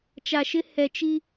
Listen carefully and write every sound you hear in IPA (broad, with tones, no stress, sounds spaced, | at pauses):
t͡ʃ a˨ ʃ ɪ˦ h ɛ˨ t͡ʃ i˦